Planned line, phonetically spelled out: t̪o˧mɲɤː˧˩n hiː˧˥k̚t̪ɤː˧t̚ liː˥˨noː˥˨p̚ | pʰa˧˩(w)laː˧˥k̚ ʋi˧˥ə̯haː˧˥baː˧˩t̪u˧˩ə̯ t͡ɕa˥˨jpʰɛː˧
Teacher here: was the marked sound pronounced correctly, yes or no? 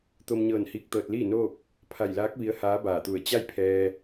no